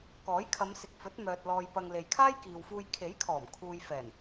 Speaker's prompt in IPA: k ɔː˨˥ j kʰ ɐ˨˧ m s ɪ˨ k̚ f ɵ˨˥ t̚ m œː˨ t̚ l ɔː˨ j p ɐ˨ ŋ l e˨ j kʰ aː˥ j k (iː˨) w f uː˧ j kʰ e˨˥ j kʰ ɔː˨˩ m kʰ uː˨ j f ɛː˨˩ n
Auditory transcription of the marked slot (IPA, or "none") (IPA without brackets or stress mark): iː˨